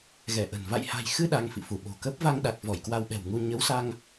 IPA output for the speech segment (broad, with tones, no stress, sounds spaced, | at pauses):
ɣ ɛ˧˩ ʔ ə̤˨˩ n v a̰˧˨ j h a̤˨˩ j x ɨ˧ ɗ a˧ ŋ f ḭ˧˨ f u˧˩ ɓ o̤˨˩ k ə˦˥ p̚ v a˧ ŋ ɗ a˨˩ k̚ v ɔ˧˩ j k w a˧ w ɓ ɛ̤˨˩ w ŋ u˧ ɲ ə˨˦ w s a˧ ŋ